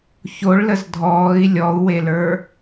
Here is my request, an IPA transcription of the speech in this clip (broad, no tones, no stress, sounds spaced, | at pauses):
ç o ɭ l ə z dʱ ɔː i̯ lʲ ɔ u̯ w e l ə˞